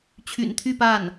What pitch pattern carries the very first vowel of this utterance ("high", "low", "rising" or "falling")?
low